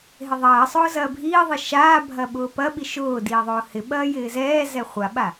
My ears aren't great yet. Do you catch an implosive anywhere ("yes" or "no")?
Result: yes